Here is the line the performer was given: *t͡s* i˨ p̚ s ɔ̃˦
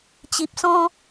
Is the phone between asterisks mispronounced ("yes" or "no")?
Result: yes